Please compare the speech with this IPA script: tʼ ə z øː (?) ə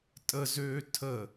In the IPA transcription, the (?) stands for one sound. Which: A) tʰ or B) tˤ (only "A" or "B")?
A